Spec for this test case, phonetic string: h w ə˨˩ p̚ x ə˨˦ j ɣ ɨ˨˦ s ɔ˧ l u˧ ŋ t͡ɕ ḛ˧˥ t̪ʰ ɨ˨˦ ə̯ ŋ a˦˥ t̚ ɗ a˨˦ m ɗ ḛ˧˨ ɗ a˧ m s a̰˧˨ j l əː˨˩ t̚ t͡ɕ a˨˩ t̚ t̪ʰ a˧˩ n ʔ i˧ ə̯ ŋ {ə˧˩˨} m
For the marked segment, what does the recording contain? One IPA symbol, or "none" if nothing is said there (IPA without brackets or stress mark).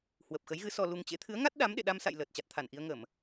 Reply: ə˧˩˨